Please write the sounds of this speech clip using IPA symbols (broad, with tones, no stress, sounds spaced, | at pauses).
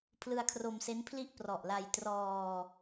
pʰ l ɯ˧ a̯ kʰ r o˧ m s e˦˥ n pʰ l i˥˩ ʔ p r ɔ˨˩ ʔ l a˧ j t r ɔː˧